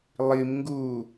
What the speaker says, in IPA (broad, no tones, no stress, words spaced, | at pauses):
lˠimŋɡuː